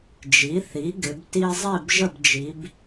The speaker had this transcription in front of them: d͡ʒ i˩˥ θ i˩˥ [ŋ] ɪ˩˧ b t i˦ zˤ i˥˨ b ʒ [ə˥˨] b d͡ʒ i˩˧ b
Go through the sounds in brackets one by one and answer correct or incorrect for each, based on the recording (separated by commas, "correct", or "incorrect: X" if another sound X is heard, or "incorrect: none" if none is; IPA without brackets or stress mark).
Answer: incorrect: ɡ, correct